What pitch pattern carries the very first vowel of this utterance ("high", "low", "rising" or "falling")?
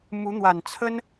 rising